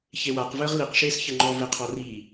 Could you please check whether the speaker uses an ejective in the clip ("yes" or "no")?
no